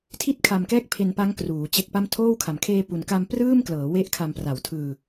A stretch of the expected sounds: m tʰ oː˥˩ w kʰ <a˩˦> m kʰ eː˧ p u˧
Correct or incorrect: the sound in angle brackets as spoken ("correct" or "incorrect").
incorrect